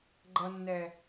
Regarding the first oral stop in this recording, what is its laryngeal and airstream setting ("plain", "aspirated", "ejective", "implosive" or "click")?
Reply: click